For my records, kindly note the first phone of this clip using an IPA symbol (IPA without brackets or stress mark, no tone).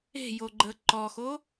e̤